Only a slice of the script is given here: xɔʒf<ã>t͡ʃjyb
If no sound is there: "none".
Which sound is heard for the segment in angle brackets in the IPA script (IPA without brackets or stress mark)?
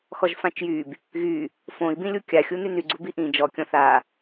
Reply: ã